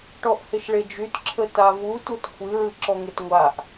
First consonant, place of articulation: retroflex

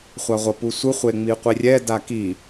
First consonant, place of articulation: uvular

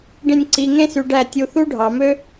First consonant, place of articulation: retroflex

